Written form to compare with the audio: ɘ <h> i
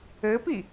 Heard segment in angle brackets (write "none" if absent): p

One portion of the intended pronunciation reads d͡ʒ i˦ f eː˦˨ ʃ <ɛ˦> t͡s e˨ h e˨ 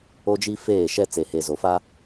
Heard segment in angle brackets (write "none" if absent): ɛ˦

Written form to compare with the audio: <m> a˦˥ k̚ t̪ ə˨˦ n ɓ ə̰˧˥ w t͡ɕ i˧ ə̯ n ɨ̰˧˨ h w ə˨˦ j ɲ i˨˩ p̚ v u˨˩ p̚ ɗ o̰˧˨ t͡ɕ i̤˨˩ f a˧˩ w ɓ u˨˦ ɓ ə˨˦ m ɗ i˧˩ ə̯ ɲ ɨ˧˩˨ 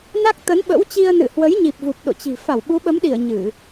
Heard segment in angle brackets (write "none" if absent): n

